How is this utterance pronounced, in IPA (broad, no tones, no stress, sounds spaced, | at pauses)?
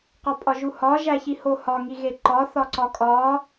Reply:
q ɒ pʼ ɒ ʒ u h ɒ ʒ æ ç i h o h ɒ ŋ i ɣ e ǃ ɒ θ ɒ ǀ ɒ kʼ ɒ